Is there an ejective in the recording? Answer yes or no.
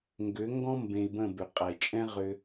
yes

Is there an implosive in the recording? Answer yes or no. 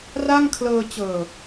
no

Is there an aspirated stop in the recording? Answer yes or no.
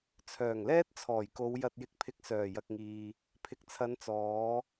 yes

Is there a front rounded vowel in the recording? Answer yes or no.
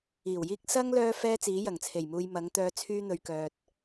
yes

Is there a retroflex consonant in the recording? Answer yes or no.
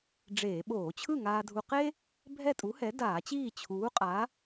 yes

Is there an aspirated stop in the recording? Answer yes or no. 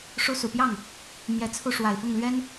yes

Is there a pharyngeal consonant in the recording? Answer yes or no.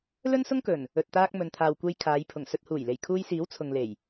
no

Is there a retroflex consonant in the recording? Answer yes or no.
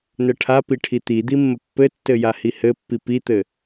yes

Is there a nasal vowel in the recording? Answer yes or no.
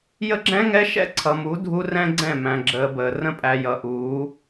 yes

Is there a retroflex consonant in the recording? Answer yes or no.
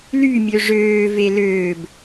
yes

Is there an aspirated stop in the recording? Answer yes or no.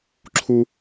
yes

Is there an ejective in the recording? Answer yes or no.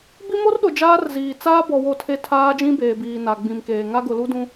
no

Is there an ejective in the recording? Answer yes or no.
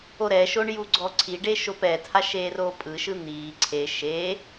yes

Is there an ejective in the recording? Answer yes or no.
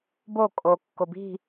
yes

